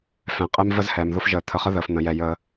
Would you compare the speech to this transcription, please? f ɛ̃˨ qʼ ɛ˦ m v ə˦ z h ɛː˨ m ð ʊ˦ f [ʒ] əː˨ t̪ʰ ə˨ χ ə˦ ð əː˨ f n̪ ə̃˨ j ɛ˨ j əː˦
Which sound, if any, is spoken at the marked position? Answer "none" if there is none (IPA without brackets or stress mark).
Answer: ʒ